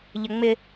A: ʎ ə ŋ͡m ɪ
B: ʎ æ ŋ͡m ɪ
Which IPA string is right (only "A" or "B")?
A